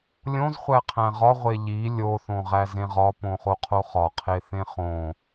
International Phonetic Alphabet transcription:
lʲ õ z χʷ æ qʰ æ̃ ʁ ɒ ʁʷ e ʎ i lʲ o θ õ ʁ æ z ẽ ʁ ɒ p õ χ o qʰ o χ ɒ qʰ e θ ẽ χ õ

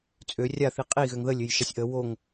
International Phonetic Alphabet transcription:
t͡sʼ ø rʲ a θ i qʼ i ɣ ø ŋ ð ə lʲ ø j ʃ a sʲ ʔ ə w o ŋ

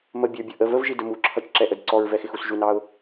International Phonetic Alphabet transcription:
m ə bʲ ə˞ bʲ ʌ ʔ ə v ə v ʒ i d ə m u ǁʰ ʌ t͡ʃ ǁ ɛ ʔ ə d ǀ ɔ ɹ v ɛ x ɪ x u s ʒ u n ɑ ʊ̯

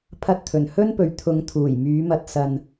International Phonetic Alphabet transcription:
pʰ ɐ˧ t̚ t̪ʰ ɵ˨˩ n h ɵ˥ n p ɵ˨ ɥ t̪ʰ ʊ˨˧ ŋ t̪ʰ uː˨˩ j m yː˨˧ m ɐ˧ t̚ s ɐ˧ n

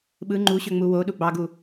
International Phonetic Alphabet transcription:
ɓ ɯ ŋ͡ǃ u ɕ ø ŋ͡m u w o ɗ u ɡ͡b ɑ ɡ u

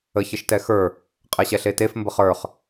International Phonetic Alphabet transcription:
ə ç ə ʃ t ɛ x ə˞ | qʼ ɛ ɕ ɛ ɬ e t e f m b ə χ ə˞ χ

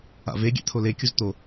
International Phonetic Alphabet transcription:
a̰ v e ɡʲ ɛ̰ t̪ʰ o l e kʲ u z t̪ o

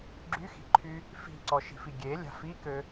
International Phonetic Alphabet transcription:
ɡ͡ǁ y x i̤ ǃʰ y | f i̤ ǀ ɔ ʃ i̤ f i ɡʲ e lʲ a̤ f i k ø

